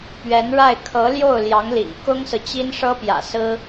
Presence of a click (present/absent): absent